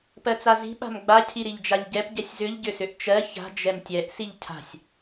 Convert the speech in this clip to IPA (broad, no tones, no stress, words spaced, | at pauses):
pɜt͡sazi̤ ɓa̤mɡ͡ba cʰiɾiʎd͡ʒaʎɟɛp ɟɛsʲzʏʎ ɟʏsʏʔt͡ʃɜ ça̤ d͡ʒɛmtʲɛʔ siʎcʰa̤sʲ